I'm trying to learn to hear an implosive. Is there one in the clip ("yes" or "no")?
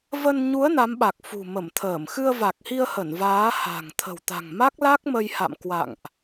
yes